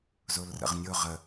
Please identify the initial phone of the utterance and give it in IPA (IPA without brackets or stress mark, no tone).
z